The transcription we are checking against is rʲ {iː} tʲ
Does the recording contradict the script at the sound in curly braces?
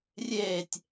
yes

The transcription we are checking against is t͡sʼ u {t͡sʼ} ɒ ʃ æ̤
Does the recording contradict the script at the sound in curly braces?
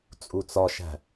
yes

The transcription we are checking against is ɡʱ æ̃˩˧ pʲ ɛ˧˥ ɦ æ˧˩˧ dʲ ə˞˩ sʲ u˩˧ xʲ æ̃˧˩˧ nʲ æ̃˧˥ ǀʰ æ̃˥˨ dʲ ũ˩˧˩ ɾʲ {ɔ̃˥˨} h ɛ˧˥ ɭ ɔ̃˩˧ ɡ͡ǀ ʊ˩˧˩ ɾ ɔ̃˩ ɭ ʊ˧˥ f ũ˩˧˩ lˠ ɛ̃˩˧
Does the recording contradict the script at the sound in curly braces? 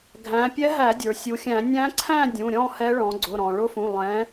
no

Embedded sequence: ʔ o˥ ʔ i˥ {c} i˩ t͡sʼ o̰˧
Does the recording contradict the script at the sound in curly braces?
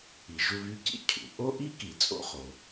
yes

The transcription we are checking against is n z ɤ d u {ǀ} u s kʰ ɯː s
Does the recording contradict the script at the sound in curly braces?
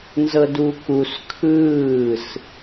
yes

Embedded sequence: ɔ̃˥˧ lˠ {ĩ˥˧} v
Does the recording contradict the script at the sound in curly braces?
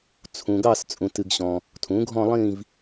no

